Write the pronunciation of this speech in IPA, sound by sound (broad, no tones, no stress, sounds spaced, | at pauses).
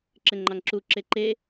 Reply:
ǁ ɘ ŋ͡ǃ ɑ ŋ ǁ u ǁ e ǃ e